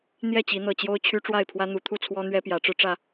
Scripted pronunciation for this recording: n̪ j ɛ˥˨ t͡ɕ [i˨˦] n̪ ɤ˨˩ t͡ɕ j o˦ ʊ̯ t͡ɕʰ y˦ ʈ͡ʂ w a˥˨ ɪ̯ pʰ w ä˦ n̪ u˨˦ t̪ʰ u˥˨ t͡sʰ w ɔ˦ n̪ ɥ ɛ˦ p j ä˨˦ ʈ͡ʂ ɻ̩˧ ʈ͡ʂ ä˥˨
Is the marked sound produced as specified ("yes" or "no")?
yes